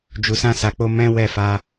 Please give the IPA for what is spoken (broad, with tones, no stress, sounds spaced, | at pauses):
d͡ʒ u˨ s ã˧ s a˨ k͡p o˧ m ɛ̃˦ w ɛ˦˨ f a˧